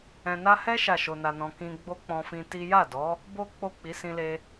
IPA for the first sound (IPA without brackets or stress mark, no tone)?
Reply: ɛ̃